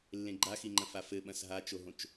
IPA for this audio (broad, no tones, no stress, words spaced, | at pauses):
lːẽɡ͡ǃaxiŋ͡ǃɐ̃ fafɘɓɐ̃s ɦat͡ʃoɦõt͡ʃ